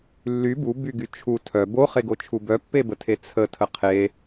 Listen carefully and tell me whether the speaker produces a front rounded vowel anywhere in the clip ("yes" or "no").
yes